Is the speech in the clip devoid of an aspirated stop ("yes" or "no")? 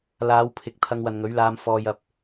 no